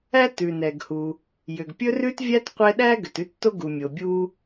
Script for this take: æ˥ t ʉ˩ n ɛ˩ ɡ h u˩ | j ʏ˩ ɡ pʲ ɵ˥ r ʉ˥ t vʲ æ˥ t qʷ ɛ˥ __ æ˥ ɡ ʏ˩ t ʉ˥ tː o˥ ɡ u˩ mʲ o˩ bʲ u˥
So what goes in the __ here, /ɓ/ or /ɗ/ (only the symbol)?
ɗ